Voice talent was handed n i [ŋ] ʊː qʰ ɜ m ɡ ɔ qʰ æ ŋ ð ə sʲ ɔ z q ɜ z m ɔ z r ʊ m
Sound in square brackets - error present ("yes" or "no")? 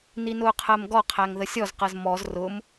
yes